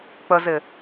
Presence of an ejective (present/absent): absent